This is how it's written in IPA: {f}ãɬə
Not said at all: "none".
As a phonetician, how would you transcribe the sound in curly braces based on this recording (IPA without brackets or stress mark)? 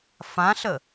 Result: f